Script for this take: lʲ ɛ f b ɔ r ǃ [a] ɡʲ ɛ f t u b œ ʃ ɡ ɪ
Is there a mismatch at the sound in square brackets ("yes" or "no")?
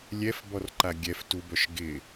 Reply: no